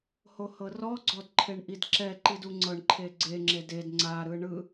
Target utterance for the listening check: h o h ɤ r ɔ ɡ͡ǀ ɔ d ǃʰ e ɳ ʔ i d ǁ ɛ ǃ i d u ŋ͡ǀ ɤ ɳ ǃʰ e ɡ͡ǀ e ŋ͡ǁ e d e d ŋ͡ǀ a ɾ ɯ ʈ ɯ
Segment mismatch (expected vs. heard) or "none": ʈ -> ɳ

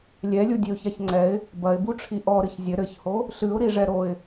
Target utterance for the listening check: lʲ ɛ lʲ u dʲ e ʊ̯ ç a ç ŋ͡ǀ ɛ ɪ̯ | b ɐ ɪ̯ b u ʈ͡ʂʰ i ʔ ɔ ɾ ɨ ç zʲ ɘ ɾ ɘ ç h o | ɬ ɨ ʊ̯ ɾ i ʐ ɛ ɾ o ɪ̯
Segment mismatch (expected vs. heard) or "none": none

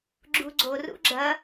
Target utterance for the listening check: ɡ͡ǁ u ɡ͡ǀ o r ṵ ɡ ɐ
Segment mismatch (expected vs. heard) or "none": ɡ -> ɡ͡ǁ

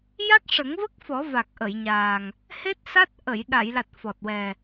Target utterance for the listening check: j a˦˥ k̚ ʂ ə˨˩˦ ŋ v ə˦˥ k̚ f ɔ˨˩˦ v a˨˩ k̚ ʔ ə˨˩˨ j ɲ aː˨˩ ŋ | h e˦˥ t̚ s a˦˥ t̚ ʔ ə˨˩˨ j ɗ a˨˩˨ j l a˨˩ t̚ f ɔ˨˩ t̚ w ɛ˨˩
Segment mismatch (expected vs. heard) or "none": none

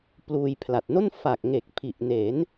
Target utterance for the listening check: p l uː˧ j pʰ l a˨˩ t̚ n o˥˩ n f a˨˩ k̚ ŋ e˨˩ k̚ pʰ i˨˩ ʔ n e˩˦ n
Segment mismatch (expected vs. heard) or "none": none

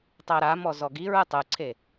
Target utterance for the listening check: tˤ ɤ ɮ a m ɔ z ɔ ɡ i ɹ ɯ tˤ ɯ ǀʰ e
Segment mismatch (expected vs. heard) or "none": ɮ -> ɾ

